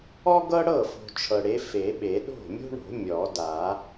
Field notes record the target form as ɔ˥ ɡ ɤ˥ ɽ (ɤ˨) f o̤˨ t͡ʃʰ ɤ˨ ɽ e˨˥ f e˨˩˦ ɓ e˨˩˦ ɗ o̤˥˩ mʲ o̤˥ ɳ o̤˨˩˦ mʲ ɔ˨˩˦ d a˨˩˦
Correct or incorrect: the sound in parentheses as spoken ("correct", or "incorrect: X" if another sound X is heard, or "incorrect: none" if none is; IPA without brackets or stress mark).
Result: incorrect: ɤ˥˩